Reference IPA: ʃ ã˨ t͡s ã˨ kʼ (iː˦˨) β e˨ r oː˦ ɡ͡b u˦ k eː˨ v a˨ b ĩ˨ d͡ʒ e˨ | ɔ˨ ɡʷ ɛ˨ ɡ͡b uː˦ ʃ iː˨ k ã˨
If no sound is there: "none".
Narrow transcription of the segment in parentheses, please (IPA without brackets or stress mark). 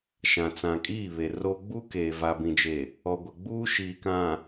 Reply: iː˦˨